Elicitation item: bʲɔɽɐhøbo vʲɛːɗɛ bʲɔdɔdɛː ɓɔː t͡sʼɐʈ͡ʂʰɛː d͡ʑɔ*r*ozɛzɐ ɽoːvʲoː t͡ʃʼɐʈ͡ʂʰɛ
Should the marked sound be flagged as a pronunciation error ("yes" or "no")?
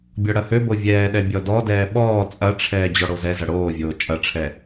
yes